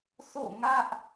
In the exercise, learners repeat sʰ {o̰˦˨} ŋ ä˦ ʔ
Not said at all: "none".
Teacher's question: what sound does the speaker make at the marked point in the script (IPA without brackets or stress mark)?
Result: o̰˦˨